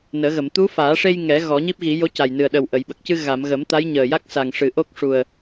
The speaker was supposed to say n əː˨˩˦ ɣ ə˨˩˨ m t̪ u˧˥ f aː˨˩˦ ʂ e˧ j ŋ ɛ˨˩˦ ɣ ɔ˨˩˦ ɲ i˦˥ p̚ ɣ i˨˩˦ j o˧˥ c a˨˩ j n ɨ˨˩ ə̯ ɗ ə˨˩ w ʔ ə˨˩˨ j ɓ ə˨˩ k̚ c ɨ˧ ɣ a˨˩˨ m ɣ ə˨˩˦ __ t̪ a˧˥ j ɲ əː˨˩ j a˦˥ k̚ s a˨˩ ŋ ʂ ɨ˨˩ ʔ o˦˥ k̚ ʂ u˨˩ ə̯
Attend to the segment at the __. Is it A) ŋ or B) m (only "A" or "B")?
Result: B